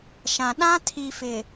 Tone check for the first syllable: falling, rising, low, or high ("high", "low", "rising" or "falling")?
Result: low